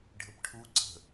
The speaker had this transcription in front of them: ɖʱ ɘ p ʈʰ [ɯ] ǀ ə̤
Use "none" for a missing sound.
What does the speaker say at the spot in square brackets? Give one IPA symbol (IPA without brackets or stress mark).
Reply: u